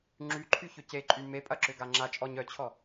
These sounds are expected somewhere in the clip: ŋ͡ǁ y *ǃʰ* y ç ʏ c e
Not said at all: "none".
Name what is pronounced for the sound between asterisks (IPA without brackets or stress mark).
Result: ǃʰ